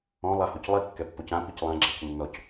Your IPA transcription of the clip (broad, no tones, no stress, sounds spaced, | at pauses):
ɔ̃ lˠ a h o c lˠ i kː ɛ pː o c ã p i c lˠ ã ɡ͡ǁ ɛ̤ c nː ɔ c